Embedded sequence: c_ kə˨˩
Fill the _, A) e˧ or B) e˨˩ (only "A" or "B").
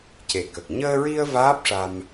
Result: B